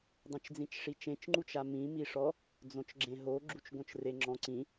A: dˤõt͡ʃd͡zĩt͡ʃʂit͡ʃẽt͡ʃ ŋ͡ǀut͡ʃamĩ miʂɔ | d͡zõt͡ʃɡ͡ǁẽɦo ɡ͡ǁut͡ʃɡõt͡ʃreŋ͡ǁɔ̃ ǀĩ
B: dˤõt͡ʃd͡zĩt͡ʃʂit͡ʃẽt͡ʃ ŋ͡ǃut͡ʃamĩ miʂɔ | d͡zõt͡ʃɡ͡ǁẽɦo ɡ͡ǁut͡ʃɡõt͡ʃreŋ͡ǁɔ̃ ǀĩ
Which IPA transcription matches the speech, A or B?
B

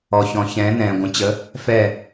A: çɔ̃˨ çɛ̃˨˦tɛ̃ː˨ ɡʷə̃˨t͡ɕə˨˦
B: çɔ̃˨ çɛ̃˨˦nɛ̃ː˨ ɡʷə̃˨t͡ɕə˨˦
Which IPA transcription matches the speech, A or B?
B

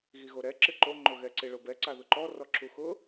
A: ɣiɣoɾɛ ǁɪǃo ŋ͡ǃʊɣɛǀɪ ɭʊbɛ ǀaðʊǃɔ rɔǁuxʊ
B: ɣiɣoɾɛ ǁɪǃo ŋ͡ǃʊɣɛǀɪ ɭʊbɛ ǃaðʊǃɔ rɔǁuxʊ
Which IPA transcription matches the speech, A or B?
A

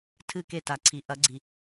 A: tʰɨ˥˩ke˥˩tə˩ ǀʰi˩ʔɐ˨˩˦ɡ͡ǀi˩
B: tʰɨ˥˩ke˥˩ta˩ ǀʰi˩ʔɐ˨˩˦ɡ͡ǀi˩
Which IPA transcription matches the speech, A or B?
B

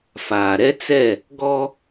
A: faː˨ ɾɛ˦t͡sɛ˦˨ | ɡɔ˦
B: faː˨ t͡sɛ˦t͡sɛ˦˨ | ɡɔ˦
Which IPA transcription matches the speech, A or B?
A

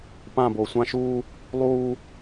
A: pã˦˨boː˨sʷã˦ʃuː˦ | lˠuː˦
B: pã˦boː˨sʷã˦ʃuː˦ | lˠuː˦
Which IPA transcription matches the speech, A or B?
A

